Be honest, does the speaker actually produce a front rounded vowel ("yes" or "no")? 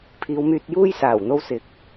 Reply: yes